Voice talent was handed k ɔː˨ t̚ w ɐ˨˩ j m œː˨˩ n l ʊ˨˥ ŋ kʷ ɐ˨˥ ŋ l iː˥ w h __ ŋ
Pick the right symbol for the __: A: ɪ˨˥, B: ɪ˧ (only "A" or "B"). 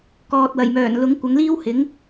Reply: A